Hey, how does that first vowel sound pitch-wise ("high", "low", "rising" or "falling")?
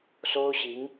high